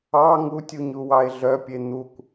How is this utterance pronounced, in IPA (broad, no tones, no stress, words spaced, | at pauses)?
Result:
ɑ ŋutʲuɲuwɑe̯ ɮœpʲe n̪ukʷ